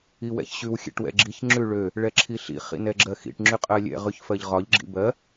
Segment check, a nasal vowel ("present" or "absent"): absent